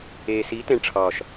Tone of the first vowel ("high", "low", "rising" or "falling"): low